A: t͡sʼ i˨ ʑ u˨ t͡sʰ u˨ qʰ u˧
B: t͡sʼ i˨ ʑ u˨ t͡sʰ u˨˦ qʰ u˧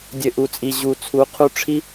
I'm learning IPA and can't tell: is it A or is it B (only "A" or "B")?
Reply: B